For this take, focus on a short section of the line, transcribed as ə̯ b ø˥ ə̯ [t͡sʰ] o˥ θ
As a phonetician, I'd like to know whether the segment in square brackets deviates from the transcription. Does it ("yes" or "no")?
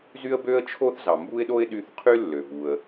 yes